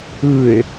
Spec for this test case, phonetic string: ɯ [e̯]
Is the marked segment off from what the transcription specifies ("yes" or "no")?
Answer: no